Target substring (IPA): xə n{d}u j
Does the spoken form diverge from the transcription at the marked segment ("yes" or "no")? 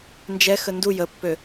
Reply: no